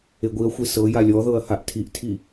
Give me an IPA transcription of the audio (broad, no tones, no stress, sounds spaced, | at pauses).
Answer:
e ɡʷ i ɐ̯ xʷ e s ɤ j a lʲ ɔ ð ɤ ɐ̯ h a ʔ tʰ i ʔ tʰ i